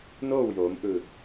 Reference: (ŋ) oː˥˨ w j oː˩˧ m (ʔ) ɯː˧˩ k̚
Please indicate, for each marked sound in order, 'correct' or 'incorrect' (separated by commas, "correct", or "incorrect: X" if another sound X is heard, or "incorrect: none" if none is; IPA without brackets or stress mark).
incorrect: n, correct